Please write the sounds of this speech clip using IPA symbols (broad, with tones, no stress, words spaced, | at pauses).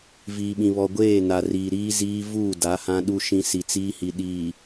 viː˨ɓĩ˨ βɔ˨ɡʷeː˦˨ na˨riː˨ɾiː˦ ziː˦vuː˦˨da˨˦ hã˦ɗu˦ʃĩ˦ si˨t͡siː˦hi˨ɗiː˨